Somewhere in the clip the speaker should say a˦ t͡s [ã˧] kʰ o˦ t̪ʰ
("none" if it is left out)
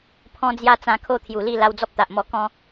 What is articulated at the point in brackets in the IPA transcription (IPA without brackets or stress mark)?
ã˧